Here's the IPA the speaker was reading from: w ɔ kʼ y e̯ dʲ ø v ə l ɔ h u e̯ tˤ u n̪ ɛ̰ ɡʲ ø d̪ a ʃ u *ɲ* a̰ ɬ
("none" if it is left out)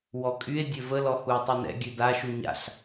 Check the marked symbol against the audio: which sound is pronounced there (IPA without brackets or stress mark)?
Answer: ɲ